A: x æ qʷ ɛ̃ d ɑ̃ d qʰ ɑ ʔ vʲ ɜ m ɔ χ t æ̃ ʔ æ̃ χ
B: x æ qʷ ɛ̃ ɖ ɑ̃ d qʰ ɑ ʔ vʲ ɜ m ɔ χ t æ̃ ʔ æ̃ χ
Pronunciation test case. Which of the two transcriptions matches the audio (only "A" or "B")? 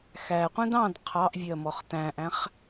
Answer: A